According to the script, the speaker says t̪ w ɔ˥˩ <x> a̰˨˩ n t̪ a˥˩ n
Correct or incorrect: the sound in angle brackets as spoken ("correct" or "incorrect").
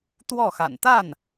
correct